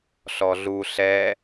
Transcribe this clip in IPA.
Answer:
ɬ ɔ ɮ u ɬ ɛ

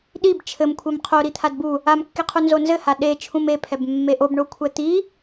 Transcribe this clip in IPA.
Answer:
ɗ i b t͡ʃʰ ɘ m kʷʰ e m qʰ o ɾ i t̪ʰ a d b u | a m kː i qʰ u n z o n z ɘ h a ɗ e t͡ʃʰ ũ m e pʰ ɛ b mː e ʔ o b ɳ o kʷʰ ɛ t̪ i

